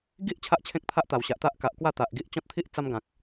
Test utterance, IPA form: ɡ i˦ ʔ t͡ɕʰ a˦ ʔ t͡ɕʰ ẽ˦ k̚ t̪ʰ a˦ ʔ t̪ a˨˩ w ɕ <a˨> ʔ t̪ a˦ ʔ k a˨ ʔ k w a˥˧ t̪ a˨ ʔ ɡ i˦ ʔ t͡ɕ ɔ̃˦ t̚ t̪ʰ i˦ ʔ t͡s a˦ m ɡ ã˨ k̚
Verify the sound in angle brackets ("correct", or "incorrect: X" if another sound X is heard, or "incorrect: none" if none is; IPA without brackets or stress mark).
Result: correct